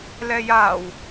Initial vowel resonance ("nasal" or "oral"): oral